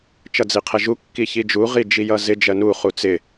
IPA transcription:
t͡ʃʌd͡ziqʰɛʒu kːiçid͡ʒu ʁid͡ʒijʌzɪ d͡ʒɜnu χut͡sɪ

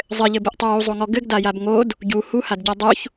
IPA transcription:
zˤɘʎɘbɘʔtˤow uzˤoŋɔ ɡɘɡdajab ŋod | ɟu huhadɟa dˤuç

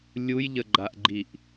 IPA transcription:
lʲujʎəɡ͡ǃaʔɡ͡ǃiʔ

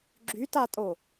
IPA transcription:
ɡ͡ǁytatʼo

